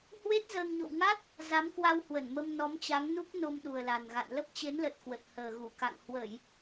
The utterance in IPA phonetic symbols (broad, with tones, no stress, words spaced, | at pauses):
hwe˦˥t̚ zəː˧ŋɲo̰˧˨w ŋa˦˥t̚ | za˨˦mkwa˧whwə˧˩nmə˧m nɔ˨˦mt͡ɕa˨˦ŋnu˦˥k̚ no˧mɗu˨˩ə̯la˨˩nɣa̰˧˨n lə˦˥p̚t͡ɕe˨˦nlə˨˩t̚kwə˨˩t̚ həː˨˩ɣu˧˩ka̰˧˨ŋ hwə˧˩˨j